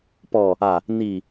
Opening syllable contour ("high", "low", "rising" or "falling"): low